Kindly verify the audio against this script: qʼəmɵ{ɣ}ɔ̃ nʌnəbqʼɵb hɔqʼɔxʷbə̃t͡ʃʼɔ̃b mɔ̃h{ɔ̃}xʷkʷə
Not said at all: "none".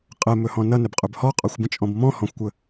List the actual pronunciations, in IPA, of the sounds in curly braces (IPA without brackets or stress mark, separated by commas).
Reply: h, ɔ̃